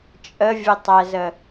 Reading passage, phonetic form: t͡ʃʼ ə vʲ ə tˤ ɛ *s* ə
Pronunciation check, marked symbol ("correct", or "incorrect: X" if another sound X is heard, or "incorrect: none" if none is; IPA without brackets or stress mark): incorrect: z